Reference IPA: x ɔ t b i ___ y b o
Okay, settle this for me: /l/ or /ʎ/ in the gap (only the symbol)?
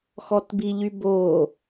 ʎ